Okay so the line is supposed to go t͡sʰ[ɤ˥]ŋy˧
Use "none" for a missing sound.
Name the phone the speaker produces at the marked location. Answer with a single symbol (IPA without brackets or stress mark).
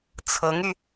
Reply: ɤ˧˥